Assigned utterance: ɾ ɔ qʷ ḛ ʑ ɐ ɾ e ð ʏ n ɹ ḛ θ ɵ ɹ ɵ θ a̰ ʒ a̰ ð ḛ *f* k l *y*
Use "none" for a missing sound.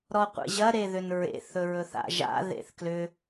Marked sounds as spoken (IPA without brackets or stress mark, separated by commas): θ, ʏ